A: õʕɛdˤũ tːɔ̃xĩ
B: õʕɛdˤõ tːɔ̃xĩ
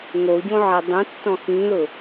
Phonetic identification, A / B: A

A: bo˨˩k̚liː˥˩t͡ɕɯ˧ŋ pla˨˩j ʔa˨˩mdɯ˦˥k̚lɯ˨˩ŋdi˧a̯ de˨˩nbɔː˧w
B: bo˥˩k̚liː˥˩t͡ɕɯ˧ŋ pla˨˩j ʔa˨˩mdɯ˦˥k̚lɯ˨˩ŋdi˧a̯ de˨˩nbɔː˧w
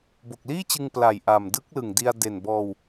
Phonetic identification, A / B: A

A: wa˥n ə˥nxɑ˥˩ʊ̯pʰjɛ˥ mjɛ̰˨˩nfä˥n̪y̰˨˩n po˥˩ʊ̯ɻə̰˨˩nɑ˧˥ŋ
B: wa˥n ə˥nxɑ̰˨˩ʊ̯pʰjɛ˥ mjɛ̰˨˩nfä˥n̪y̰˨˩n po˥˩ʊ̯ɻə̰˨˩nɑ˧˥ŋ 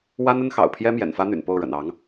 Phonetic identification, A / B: B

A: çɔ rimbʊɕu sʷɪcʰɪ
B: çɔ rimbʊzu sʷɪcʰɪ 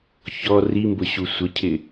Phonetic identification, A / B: A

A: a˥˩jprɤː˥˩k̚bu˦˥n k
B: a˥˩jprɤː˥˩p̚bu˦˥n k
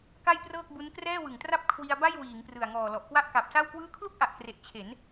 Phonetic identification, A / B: A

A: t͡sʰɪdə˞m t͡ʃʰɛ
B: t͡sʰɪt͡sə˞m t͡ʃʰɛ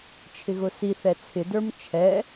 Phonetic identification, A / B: A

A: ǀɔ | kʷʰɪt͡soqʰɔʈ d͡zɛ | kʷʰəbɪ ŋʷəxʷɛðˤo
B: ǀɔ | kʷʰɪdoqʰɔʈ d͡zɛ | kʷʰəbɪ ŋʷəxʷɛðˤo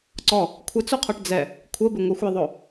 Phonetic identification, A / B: A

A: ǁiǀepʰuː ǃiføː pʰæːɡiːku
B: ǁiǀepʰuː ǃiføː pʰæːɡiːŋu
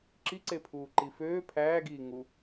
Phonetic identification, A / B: B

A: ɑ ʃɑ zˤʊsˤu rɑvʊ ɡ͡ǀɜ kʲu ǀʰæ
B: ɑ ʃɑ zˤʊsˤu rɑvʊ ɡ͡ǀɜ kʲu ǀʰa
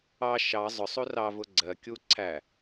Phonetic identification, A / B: A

